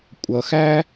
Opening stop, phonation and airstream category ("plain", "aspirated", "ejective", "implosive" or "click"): ejective